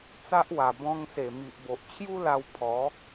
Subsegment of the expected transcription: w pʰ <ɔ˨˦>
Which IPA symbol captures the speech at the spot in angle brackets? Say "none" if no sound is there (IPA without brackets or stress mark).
ɔ˨˦